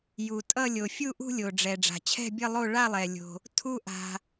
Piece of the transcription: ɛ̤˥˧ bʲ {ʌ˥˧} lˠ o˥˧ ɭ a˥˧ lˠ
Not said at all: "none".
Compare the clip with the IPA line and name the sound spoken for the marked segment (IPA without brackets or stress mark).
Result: ʌ˥˧